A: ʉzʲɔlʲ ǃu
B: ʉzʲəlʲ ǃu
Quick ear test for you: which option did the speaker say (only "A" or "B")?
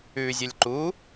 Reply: B